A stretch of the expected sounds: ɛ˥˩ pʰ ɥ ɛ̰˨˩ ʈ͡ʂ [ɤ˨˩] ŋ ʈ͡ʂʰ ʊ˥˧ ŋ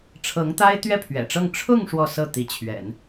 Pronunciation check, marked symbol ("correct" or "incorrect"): incorrect